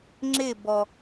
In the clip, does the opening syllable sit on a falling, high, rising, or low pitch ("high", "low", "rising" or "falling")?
falling